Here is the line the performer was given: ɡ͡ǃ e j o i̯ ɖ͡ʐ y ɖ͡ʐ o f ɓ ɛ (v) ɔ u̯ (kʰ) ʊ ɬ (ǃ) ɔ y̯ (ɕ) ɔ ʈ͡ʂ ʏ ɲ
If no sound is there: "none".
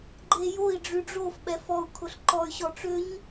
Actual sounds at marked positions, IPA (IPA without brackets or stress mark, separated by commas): f, kʰ, ǃ, ɕ